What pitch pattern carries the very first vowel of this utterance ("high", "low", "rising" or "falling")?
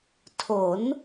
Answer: rising